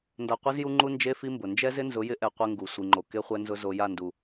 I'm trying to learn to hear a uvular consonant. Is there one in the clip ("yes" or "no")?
yes